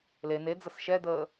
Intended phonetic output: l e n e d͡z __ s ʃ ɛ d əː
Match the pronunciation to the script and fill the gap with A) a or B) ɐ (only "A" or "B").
B